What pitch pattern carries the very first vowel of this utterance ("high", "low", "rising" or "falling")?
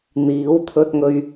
rising